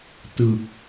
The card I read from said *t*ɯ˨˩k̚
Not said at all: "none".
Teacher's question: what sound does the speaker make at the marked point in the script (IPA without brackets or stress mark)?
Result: t